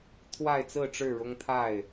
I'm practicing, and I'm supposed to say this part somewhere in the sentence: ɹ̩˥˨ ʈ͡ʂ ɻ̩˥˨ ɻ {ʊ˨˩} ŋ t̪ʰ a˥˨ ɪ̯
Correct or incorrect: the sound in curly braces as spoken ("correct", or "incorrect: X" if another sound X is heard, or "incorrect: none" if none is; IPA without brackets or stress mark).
incorrect: ʊ˦